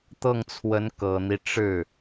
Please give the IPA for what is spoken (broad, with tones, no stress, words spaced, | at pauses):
t̪ɤ˥˩ŋt͡sʰwə˧˥n kɤ˨˩n̪i˦ ʈ͡ʂɻ̩˥˩